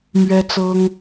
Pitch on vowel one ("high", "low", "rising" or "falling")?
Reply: high